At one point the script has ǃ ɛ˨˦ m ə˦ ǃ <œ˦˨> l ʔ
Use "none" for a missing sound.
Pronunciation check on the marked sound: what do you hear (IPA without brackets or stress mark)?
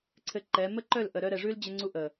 œ˦˨